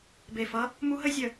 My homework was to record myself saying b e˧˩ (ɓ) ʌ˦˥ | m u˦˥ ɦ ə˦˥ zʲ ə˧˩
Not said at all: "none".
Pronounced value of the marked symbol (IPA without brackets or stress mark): f